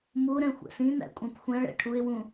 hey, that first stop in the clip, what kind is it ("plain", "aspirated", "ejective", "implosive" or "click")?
ejective